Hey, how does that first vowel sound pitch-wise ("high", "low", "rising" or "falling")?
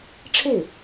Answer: falling